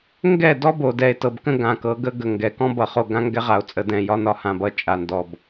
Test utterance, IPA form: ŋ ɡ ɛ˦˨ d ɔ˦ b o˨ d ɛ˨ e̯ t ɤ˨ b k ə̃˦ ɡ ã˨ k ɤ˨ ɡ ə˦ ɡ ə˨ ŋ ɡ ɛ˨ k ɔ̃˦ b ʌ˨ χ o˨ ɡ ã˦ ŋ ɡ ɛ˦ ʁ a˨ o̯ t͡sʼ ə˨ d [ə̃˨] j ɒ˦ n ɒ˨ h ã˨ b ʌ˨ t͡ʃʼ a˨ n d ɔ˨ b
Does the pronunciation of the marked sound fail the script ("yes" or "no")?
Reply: yes